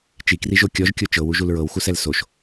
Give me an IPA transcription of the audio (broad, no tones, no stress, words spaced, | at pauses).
t͡ʃikriʒo kʲɔʒkʲo t͡ʃɤwuʒul ɹɤwxusɛl soʃ